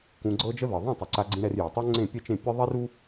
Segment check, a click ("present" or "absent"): present